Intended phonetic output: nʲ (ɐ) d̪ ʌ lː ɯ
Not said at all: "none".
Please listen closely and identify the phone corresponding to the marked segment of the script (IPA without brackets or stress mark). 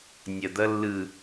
ɐ